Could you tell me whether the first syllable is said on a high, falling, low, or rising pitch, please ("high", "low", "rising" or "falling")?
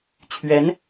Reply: rising